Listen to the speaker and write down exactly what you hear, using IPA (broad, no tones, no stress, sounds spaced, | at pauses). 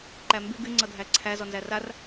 ǃ æ m b y ɡ y ŋ͡ǀ ɤ dʱ æ ǀʰ æ z ɔ n z æ r a r